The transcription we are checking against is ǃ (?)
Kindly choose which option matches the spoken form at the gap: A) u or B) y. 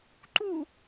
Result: A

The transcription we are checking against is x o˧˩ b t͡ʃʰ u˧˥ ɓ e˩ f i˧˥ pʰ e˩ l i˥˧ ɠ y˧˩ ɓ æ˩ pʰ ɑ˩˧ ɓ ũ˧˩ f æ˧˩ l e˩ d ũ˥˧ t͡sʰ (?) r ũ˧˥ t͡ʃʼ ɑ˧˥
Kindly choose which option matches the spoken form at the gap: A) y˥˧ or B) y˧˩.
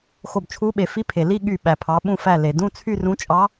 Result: A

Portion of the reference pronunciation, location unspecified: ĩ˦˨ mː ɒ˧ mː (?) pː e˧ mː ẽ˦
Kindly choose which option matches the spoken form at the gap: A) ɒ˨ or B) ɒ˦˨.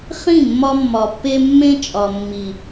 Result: A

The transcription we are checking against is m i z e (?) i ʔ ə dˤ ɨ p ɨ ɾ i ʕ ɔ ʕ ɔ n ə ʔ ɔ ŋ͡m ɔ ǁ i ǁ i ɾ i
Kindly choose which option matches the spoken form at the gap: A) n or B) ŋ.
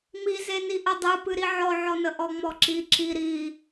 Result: A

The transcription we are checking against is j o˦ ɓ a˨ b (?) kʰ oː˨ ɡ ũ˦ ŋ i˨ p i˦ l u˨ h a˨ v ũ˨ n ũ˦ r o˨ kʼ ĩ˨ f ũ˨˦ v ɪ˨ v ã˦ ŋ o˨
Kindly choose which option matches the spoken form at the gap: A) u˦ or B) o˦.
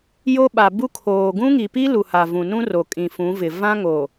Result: A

